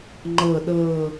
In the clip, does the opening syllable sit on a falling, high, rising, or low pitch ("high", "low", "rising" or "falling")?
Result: low